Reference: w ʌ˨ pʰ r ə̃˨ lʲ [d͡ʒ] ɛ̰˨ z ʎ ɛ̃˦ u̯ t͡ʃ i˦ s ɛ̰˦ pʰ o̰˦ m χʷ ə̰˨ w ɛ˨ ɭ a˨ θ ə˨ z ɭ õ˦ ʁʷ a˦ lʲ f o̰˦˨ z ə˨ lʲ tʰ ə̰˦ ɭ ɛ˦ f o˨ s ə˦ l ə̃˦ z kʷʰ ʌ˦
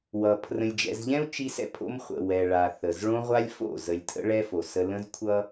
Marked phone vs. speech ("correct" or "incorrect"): correct